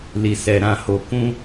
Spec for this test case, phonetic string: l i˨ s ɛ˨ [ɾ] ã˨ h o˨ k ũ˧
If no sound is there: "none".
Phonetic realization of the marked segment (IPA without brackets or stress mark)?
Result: ɾ